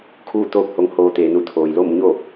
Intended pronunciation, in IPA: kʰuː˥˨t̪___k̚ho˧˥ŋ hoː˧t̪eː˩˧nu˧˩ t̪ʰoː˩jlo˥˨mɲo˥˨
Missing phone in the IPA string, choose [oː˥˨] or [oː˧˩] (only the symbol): oː˥˨